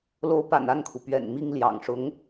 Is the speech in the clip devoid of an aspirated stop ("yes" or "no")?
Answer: no